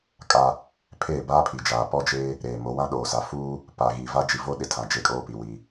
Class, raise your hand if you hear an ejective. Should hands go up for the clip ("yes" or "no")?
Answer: yes